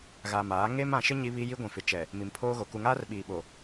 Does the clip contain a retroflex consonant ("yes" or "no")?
no